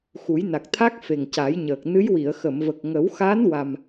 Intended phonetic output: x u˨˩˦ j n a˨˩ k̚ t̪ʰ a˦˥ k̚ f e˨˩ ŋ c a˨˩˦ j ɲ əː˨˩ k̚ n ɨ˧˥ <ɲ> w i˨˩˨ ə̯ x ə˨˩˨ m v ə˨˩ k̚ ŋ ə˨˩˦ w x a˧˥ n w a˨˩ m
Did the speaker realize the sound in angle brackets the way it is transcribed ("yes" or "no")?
no